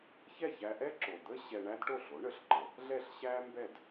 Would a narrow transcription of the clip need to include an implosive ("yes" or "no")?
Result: no